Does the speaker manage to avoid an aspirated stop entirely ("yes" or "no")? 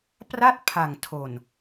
no